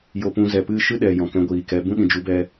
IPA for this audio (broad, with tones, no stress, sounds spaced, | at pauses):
j o˧ p ũ˧ z ɛ˨ p ɨ˦˨ ʃ ɨ˦ ɗ ɛ˨ j ɔ̃˨ k ɛ̃˧ ɡʷ iː˨ k ɛ˨˦ b ũ˦ ɗ ĩ˨ d͡ʒ u˨˦ b ɛ˧